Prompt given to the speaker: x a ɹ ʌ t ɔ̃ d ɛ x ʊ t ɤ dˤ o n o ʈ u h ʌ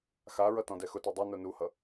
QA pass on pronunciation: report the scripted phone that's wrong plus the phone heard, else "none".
ʈ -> n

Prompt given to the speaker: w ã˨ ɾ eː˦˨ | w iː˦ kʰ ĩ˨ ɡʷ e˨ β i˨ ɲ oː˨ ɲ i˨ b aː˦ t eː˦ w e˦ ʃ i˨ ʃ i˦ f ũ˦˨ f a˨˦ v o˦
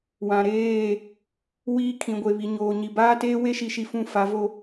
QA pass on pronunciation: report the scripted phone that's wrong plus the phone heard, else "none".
none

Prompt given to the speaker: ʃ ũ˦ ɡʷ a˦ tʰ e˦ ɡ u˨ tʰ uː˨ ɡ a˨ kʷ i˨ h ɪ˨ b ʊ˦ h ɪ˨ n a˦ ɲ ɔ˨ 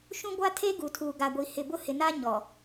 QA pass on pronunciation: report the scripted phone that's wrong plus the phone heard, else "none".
kʷ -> ɡʷ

